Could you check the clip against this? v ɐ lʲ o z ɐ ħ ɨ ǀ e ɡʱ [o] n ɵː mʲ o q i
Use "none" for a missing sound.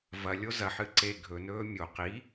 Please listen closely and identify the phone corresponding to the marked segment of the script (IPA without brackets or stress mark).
ɵ